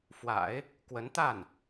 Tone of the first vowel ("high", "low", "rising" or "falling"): low